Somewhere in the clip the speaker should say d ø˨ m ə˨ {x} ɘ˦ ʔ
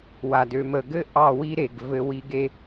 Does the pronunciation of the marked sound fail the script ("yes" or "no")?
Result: yes